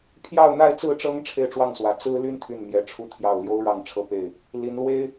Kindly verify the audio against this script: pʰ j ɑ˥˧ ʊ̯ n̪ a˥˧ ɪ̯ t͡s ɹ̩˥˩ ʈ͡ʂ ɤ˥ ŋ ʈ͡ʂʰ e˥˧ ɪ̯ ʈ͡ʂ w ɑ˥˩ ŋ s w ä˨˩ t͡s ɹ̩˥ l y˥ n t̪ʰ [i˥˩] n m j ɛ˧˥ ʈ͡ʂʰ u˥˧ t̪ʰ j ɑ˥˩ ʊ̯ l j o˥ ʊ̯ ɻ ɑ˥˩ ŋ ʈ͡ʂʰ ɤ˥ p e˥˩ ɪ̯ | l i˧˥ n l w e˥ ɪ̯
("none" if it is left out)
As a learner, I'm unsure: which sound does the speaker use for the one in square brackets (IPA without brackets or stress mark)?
y˥˩